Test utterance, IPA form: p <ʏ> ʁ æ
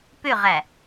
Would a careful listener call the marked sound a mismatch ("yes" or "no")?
no